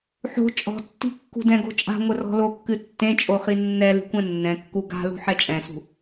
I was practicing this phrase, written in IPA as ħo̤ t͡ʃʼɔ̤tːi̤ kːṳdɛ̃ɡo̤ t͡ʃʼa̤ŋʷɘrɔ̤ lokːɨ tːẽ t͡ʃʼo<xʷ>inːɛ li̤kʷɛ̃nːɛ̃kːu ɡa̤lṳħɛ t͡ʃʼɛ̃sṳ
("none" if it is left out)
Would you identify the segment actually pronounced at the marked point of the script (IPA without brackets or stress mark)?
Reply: χ